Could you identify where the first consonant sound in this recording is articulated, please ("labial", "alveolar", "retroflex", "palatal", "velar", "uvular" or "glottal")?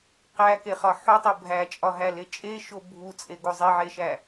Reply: uvular